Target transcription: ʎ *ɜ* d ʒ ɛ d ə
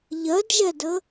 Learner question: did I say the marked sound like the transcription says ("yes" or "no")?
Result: yes